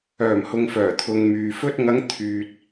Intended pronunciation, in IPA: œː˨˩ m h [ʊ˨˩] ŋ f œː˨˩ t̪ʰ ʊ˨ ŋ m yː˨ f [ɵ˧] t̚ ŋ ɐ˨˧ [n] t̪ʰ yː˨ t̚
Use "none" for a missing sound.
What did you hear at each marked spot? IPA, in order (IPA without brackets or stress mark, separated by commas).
ʊ˨, ɵ˥, ŋ